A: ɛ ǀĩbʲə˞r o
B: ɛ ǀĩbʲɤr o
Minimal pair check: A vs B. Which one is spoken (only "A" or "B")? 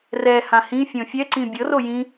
B